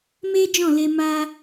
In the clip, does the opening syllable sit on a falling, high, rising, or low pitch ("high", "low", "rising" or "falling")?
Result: high